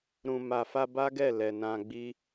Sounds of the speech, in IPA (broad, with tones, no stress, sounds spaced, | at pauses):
ɾ ũ˨ m a˨ f a˧ b a˦ ɡ ɛ˦˨ l ɛ˨ n ã˧ ɡ͡b i˦